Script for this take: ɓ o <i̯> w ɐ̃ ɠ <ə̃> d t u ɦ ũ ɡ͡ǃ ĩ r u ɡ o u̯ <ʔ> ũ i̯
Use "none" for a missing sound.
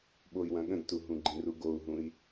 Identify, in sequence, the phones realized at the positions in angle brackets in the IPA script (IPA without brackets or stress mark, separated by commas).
i̯, ə̃, ɦ